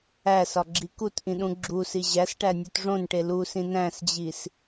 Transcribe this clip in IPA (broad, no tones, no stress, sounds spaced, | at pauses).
æ s ɒ ɡ͡ǁ i k u t ʔ ĩ ɗ ũ ɡ͡ǁ u s i ʑ æ s ʈ æ nʲ u t ʐ õ n ʈ e l u s ĩ n æ̃ s d͡ʑ i s